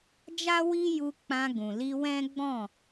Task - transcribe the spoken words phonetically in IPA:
d͡ʒ a˦ w i˦ j u˧ k͡p ã˧ ɡ ũ˨ l i˧ w ɛ̃˦ ɡ͡b ɔ̃˦˨

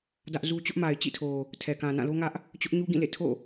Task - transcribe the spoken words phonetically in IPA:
d ä˦ ʔ z u˦ t͡ɕ ʊ˦ ʔ m a˨ ɪ̯ t͡ɕ ḭ˦˨ tʰ o˨ | tʰ ɛ˨ k ã˨ n ã˦˨ l o˦ ŋ ä˦ ʔ | t͡ɕ ʊ˦ ʔ ɲ u˦ ɡ ĩ˦˨ l ḛ˦˨ tʰ o̰˦˨

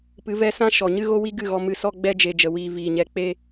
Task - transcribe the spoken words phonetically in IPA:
p ɨ˨˦ v ɛ˧ s ã˦ ʃ ɔ˨ ɲ ɨ˦ ɣ o˦ w i˦ ɡ ɨ˦˨ ɣ ɔ˧ m ɨ˧ s ɔ˦ ɡ͡b ɛ˦ d͡ʒ e˧ d͡ʒ ə˧ w iː˧ v iː˨ ɲ ɛ˧ k͡p e˦

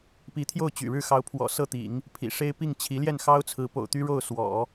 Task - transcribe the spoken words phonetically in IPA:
p i˧˥ t̪ʰ j o˥˩ ʊ̯ t͡ɕ y̰˨˩ ɻ ɻ̩˥˩ x ɑ˧˥ ʊ̯ pʰ w ɔ̰˨˩ s ɤ˥˩ t̪ ḭ˨˩˦ ŋ | pʰ ḭ˨˩ ʂ e˥ ɪ̯ p i˥˩ ŋ t͡ɕʰ i˧˥ l j ɛ˥˩ n x ɑ˥ ʊ̯ t͡sʰ ɹ̩˧˥ p o̰˨˩ ʊ̯ t̪ y˥ ɻ o˥˩ ʊ̯ s w ɔ̰˨˩˦

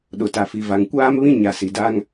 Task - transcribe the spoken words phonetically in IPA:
ɗ ʊ˨ t a˨ f i˨ v a˨ ŋ kʷ aː˦ m β ĩ˦ ɲ a˨ s i˨ d a˦ ŋ

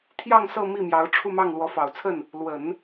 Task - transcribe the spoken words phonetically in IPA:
t̪ʰ j ɑ˥˧ ŋ s ɤ˥˧ m i˥˩ m j ɑ˧˥ ʊ̯ ʈ͡ʂʰ u˥˧ m ɑ˥˩ ŋ l w ɔ˧˥ f ɑ˨˩ ʊ̯ t͡sʰ ə˥˩ n | l w ə˨˩˦ n

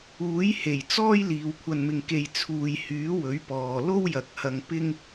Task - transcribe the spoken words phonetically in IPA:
uː˨˥ j h e˨˩ j t͡s ɔː˥ j l iː˨ w kʷʰ ɐ˧ n m ɪ˧ ŋ k e˧ j t͡sʰ uː˨ j h yː˨˥ w ɵ˨˥ ɥ p ɔː˨ l o˥ w j ɐ˨ k̚ h ɐ˧ ŋ p ɪ˥ ŋ

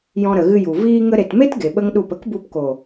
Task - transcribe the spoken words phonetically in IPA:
j ɔ̃˧ ɾ ə˨ ɣ ɨ˧ j u˨ v iː˧ ŋ ə˧ ɾ e˨ t m e˦ t ɡ e˨ ɓ ə˦ ŋ ɗ u˦˨ p ə˦ k b u˧ p k o˨

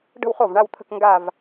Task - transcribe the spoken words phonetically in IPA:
ɖ ə̤˥˧ w χ o˥˩ v ɳ a˥˧ w t̪ʰ ə̤˥˧ k ŋ ɡ a˥˧ v

